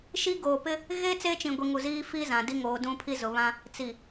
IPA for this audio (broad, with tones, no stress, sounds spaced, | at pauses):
ʃ i˦ ɡ oː˨ p ɪ˦ | ɣ e˦ t͡s eː˦ t͡ʃ ĩ˨ ɡʷ i˨ ŋ u˨ z iː˦ f i˦ z ã˨ d i˦ ŋ oː˨˦ d ũ˦ pʰ i˦ z ʊ˨ β ã˦ | t͡s i˨